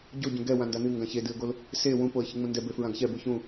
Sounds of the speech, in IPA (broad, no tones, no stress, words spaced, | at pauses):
ɟo ɟũɡɛ wãndanɨ ŋɡãçedɨə̯ɡol | se wũpoə̯ çɨŋ͡mũndɛ befɹãɡçɛ buçũ